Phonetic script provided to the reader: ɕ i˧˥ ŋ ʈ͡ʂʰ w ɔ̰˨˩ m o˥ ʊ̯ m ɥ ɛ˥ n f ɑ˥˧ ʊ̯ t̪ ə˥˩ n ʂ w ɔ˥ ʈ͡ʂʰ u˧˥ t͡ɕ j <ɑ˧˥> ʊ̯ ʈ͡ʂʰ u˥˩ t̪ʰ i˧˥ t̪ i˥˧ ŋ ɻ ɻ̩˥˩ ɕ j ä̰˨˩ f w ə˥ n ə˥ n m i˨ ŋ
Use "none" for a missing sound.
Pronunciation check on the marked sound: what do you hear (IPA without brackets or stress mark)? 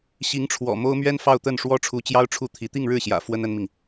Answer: ɑ˥